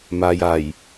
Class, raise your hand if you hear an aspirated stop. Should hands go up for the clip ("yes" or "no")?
no